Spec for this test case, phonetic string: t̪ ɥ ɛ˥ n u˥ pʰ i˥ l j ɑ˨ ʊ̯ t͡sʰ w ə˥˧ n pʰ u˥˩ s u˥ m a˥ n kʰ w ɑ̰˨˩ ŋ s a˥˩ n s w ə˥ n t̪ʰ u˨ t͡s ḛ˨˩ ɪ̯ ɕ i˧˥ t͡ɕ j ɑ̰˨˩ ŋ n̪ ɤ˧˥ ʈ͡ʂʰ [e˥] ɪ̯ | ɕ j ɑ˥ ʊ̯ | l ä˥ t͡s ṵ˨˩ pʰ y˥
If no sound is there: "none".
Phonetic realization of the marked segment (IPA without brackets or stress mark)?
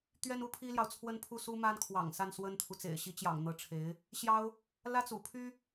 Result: e˧˥